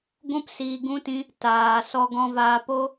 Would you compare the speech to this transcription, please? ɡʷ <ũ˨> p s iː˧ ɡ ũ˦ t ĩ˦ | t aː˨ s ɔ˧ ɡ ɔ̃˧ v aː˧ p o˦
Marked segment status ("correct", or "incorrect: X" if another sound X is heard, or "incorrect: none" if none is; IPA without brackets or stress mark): incorrect: ũ˦